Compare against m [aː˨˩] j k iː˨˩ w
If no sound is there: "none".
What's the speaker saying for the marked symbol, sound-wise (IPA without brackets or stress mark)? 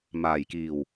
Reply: aː˨˩